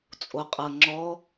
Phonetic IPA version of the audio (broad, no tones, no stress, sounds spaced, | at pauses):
t͡sʼ o qʼ ɤ ŋ͡ǁ ɔ